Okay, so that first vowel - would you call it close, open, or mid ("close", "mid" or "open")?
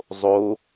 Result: mid